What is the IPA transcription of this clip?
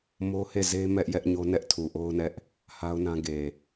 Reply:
mo˦he˦˨ze˦ mɛ˦ʔ jɛ˦ʔɲo˦ nɛ˦ʔtʰu˨ʔo˦ʊ̯nɛ˦ʔ | ha˦ʊ̯nã˦ ɡe˨

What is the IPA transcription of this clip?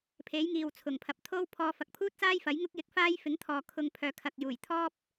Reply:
pʰe˨˥jŋiː˨w t͡sʰʊ˨˩ŋpʰɐ˨p̚ t̪ʰo˥w pʰɔː˧ fɐ˨k̚pʰuː˥t̚t͡saː˥j fɐ˨˥jŋʊ˥k̚ jɪ˧k̚faː˥jfɪ˨˥ŋt̪ʰɔː˨ kʰʊ˨ŋ pʰœː˨kʰɐ˨k̚juː˨˩j t̪ʰɔː˥p̚

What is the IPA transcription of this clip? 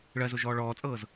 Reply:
ɭɜzoʒɔː ɭɔːt͡sʼɤːz

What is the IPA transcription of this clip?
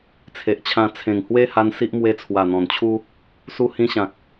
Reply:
t͡sʰe˨ʔt͡ɕʰã˧ t͡sʰẽ˨˩ŋhwe˦ha˧n si˦ʔ mwe˧ t͡sʰwa˨˩n̪ɔ̃˨˩nt͡ɕʰu˦ | su˧hĩ˧ɕã˨k̚

